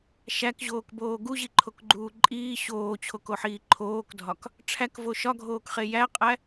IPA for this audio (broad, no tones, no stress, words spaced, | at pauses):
ʃækʑoːkboː ɡuʑiǃʰokɡ͡ǃuː ǃʼiː ɕoːt͡ɕʰokoħiː ǃʰoːkdʱɒk | ʈ͡ʂʰækvo ʃɒɡʱoːkχe jæqʼæ